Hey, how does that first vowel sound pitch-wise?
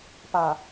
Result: low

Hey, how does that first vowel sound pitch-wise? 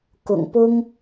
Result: low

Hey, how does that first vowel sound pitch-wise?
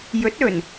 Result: rising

